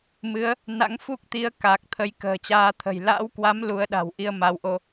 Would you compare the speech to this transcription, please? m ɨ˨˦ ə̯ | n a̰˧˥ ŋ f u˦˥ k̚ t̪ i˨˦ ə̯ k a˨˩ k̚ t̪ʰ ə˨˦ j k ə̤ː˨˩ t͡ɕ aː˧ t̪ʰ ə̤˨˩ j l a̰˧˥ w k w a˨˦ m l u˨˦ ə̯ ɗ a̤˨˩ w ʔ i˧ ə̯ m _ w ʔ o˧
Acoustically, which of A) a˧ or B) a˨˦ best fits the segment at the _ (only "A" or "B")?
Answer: B